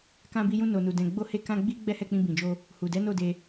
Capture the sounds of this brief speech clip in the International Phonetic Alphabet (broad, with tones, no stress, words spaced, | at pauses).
kã˧bi˧jũ˧ no˨nu˨ dɛ̃˨ɡ͡bo˧he˧ kã˧ ɡ͡bi˦ ɡ͡bɛ˦hɛ˦˨k͡pĩ˧ bĩ˨d͡ʒo˧ | hu˨dɛ˨˦ no˦˨de˧